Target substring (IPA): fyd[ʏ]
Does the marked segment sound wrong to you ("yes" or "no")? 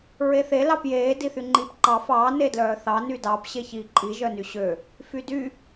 yes